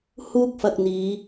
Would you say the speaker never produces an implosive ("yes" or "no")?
yes